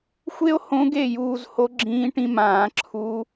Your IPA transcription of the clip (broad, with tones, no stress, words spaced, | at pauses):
xʷe˥o̯hõ˧˥ ɡe˥˩juː˧zho˧˥ ɡ͡ǁĩː˧˥ʈĩ˧mãː˨˩˦ ǁʰu˧˥